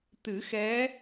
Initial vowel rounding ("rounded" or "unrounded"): unrounded